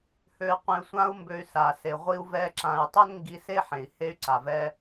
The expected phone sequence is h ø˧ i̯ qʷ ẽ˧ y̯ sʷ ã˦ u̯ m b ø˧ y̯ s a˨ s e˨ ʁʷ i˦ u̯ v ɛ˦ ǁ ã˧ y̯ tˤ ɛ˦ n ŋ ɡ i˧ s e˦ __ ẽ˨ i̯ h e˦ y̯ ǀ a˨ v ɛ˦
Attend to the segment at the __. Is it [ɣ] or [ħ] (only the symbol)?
ħ